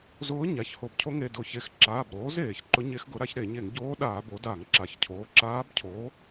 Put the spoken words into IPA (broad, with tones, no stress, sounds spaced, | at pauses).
z ʊː˧˥ ɲ a˩˧˩ ç h o˧˩˧ b cʰ o˧˥ ŋ e˩˧˩ d ʊː˧˩˧ ç e˩˧˩ x ǁ aː˩˧˩ b ɾ oː˩˥ z eː˧˩˧ ç ǃ ʊ˧˥ ɲ e˧˥ x ɡ ʊ˩˥ ɾ a˩˥ ç ɾ e˧˩˧ ɲ e˧˩˧ ŋ ɟ oː˧˥ ɗ aː˧˩˧ b o˩˥ d aː˧˩˧ ŋ ǁ a˩˥ ç cʰ oː˩˧˩ ǁ aː˧˥ b cʰ oː˩˥